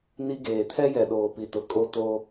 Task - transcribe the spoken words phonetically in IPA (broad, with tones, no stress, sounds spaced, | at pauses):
n i˦ ɡ eː˨ tʰ ɛ˦ j ɛ˨ ɗ oː˨ p i˨ t ʊ˨ kʼ o˦ t o˦